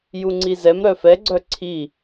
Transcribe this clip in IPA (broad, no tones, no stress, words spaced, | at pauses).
juŋ͡ǀizɛm ɾœfɛɡ͡ǀœ ǀʰi